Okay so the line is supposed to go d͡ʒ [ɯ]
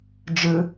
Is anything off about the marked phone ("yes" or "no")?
no